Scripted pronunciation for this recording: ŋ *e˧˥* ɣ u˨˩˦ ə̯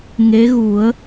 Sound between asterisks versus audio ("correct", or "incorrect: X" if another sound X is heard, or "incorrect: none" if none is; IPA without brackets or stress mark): correct